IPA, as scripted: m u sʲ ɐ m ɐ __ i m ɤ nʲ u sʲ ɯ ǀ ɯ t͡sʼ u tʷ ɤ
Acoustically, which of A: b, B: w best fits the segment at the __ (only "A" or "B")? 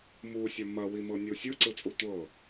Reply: B